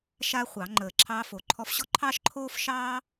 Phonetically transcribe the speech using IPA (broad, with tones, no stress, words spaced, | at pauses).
ʃaː˥χʷɑ˨˩˦ ŋ͡ǃəː˧˩ǁʰɑː˥fo˧˩ǃʰɔ˥f ɕɔ˥ǃʰɑː˥ʃǃʰoː˥fʃɑː˥